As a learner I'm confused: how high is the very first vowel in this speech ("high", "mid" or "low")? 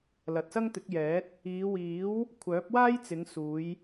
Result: low